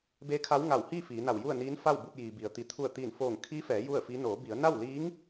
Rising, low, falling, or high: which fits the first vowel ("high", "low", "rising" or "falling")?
rising